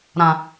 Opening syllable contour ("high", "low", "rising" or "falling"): low